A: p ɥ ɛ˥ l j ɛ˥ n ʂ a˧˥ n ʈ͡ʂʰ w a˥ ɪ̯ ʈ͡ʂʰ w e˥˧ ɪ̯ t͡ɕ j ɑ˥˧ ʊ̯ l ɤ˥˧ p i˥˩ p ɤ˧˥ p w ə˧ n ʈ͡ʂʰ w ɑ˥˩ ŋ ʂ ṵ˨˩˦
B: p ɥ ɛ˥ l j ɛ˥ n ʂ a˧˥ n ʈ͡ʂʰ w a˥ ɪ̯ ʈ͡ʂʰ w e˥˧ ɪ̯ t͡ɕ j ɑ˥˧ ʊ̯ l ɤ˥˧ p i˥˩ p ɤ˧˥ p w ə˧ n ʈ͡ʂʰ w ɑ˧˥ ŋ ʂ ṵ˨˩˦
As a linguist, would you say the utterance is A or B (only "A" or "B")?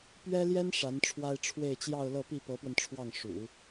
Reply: A